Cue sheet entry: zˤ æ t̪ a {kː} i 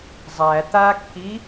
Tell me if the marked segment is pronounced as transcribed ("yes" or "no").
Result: yes